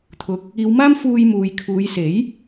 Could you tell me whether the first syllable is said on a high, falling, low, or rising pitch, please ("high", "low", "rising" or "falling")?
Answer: rising